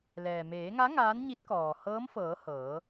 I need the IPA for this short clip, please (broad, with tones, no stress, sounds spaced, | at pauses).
l ɛː˩ m eː˩˧ ŋ a˧˥ ŋ aː˧˥ n ɲ i˧˥ t̚ k ɔː˩ h ɤː˧˥ m f ɤː˩˧ h ɤː˩˧